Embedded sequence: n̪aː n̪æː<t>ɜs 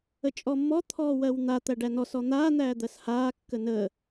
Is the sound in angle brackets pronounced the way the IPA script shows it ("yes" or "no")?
no